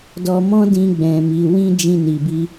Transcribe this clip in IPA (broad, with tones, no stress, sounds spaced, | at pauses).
d ɔ˧ m ɔ̃˦ d ĩ˧ ɡ͡b ɛ̃˨ m i˨ w ĩ˧ d͡ʒ ĩ˧ n i˨ b i˧